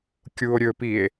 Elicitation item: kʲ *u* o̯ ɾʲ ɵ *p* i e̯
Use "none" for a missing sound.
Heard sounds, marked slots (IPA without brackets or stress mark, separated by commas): u, p